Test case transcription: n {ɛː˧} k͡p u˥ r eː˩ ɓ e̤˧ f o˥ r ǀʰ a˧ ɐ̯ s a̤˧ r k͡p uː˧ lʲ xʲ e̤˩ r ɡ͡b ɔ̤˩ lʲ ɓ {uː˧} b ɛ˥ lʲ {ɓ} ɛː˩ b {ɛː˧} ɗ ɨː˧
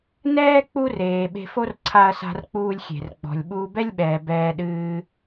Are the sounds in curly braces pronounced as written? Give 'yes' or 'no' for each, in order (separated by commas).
no, yes, yes, yes